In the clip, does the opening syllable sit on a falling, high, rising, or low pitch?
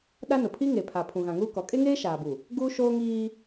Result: high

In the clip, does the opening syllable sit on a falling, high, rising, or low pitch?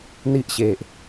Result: high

